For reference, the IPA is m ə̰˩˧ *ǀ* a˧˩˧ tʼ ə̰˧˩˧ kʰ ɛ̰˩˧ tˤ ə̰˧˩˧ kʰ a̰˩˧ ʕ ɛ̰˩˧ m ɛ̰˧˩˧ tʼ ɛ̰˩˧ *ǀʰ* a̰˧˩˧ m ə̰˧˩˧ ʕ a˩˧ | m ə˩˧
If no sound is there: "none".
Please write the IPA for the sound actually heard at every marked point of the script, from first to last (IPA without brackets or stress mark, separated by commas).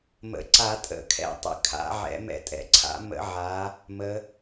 ǀ, ǀʰ